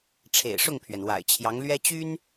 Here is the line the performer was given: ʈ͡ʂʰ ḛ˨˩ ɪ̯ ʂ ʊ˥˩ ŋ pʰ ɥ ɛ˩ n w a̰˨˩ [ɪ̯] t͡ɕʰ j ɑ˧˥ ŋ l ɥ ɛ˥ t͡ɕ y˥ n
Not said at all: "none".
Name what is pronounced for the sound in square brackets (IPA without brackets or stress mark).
ɪ̯